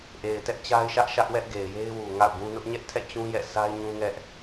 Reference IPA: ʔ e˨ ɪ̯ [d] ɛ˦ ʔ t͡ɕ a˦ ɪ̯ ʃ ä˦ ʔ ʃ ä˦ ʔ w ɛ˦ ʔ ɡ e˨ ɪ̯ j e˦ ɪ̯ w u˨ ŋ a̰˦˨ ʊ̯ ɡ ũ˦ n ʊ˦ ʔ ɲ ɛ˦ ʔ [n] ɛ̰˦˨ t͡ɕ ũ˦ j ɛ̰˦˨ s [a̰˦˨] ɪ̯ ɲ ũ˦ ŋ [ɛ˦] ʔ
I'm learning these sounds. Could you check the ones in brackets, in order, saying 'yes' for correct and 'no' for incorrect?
no, no, no, yes

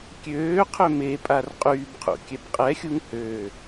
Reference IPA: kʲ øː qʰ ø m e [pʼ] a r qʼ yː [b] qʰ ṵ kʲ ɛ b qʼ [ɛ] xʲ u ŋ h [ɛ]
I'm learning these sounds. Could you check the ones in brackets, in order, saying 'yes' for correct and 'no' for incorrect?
yes, yes, yes, no

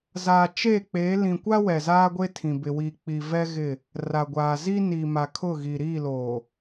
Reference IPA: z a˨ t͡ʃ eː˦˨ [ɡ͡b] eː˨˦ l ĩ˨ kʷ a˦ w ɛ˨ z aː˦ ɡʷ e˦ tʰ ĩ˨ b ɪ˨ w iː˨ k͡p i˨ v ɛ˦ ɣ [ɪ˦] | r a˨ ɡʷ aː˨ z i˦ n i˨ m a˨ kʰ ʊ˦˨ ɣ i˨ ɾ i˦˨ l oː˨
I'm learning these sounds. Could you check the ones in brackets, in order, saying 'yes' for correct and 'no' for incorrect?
no, no

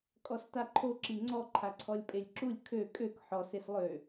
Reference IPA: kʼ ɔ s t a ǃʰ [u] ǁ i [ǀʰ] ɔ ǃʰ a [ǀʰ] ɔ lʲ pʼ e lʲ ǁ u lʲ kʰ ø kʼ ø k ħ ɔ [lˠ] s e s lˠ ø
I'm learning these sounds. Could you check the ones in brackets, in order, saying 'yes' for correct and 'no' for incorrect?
no, no, yes, no

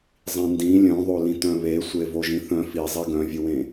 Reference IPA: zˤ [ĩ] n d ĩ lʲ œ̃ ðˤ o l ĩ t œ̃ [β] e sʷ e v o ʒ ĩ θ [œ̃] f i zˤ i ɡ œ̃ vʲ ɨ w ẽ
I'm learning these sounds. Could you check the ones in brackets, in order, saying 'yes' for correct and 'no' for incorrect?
yes, yes, yes

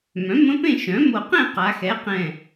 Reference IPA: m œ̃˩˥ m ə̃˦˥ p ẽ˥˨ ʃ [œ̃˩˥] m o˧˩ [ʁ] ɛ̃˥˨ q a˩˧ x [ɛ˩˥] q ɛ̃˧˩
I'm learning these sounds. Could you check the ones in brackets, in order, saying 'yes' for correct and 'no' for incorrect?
yes, no, yes

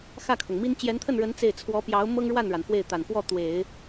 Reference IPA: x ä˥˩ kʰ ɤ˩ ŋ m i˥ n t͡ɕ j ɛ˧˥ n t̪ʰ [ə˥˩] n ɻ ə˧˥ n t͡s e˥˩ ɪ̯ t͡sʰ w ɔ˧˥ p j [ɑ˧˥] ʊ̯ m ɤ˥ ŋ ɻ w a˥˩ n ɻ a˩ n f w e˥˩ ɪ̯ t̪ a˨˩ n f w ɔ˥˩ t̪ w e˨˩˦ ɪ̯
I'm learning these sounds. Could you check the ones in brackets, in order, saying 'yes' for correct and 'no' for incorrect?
yes, yes

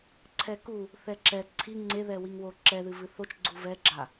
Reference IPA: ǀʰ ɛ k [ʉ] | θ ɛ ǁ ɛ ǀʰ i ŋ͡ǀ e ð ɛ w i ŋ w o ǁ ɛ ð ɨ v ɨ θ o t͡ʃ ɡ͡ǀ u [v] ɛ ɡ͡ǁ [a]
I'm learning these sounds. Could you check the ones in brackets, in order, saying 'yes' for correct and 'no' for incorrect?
no, yes, yes

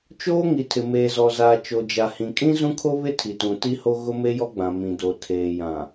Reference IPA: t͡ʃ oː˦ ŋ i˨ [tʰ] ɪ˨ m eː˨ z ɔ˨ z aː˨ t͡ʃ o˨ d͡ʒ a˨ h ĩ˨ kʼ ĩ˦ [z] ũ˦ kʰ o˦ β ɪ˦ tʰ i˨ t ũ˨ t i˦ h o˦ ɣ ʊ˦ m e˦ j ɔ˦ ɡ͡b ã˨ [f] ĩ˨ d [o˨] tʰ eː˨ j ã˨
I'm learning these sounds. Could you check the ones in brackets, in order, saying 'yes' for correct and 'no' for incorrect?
yes, yes, no, yes

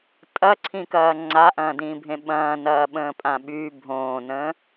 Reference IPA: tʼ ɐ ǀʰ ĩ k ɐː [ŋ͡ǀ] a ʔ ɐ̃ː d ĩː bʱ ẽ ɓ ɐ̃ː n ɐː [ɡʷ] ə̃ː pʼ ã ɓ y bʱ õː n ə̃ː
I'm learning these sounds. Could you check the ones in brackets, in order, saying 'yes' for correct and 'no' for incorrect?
yes, no

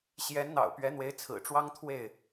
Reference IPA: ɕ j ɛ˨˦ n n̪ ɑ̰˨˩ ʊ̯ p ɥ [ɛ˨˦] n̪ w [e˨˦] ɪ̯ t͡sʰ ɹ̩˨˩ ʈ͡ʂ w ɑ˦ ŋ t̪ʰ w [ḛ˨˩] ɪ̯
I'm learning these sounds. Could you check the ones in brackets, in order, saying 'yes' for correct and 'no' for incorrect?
yes, yes, no

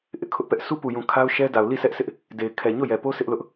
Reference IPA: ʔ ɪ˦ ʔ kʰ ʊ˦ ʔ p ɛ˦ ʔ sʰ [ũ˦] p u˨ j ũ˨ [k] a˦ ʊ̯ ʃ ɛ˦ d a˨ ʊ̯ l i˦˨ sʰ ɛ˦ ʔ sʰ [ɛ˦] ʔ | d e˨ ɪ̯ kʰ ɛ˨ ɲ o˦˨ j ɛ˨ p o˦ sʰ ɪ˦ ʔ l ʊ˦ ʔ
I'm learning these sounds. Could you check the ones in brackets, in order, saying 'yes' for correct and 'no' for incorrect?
no, no, no

